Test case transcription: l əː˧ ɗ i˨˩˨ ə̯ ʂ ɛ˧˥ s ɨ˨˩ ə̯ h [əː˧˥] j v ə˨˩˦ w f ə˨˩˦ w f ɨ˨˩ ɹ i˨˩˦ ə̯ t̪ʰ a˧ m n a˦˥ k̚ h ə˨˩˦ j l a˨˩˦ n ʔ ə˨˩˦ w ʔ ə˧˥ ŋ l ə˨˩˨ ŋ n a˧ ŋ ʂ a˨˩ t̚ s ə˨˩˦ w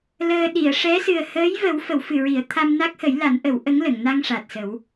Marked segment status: correct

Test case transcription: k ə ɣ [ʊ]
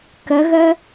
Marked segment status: incorrect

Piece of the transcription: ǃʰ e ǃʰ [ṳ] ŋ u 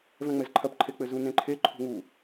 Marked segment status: correct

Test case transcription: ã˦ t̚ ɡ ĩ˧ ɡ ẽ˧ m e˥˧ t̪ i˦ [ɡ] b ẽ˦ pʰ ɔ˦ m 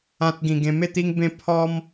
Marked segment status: incorrect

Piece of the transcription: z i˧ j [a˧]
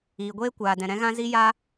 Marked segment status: correct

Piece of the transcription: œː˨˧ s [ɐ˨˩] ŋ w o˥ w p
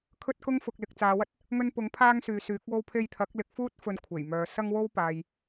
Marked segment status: incorrect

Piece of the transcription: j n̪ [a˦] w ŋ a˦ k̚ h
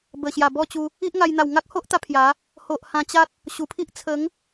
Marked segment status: incorrect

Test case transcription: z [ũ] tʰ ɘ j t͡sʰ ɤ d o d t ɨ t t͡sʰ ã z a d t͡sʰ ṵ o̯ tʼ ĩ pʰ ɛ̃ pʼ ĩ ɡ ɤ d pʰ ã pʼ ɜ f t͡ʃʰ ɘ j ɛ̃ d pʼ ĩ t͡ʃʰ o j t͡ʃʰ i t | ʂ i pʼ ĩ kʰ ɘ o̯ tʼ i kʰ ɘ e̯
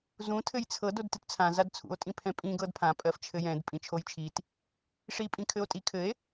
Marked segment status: correct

